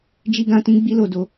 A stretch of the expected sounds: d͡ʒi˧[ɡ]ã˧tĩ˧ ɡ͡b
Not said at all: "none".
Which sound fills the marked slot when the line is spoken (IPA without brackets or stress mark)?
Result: ɡ